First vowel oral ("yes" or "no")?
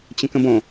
no